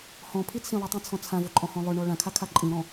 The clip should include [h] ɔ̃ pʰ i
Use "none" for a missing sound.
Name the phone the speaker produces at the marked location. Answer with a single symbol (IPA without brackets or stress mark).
h